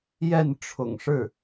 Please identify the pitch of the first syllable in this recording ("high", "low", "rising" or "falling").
falling